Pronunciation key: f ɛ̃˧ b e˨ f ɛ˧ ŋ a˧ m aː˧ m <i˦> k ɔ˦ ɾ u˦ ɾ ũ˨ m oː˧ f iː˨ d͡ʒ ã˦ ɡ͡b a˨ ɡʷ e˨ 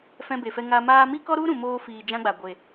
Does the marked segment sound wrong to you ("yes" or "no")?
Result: no